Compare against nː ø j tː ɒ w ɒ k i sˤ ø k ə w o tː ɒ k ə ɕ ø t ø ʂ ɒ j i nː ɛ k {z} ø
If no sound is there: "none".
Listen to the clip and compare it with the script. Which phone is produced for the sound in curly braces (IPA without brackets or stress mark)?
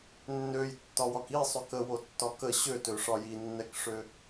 ʂ